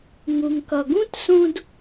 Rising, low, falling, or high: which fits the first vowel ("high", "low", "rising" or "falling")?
low